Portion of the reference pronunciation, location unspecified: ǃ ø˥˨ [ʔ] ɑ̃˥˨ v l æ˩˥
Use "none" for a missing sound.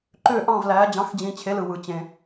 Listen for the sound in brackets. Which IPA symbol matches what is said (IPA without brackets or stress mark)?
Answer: ʔ